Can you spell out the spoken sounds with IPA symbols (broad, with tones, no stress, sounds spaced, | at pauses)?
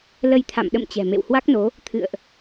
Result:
l ə˧ j t̪ʰ a̰˧˨ m ɗ ə̰˧˨ m t͡ɕ ɛ̤˨˩ m ḛ˧˨ w h w a˦˥ k̚ n o˨˦ | t̪ʰ ɨ̰˧˨ ə̯ ʔ